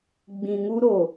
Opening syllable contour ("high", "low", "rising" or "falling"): low